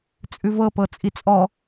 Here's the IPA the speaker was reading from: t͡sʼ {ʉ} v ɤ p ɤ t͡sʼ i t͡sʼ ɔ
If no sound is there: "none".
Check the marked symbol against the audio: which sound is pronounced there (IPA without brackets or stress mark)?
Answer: ʉ